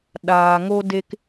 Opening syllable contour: low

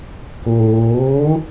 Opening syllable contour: rising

